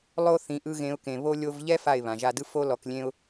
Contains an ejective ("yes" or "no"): no